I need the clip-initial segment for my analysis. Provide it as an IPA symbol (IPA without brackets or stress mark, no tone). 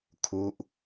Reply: kʰ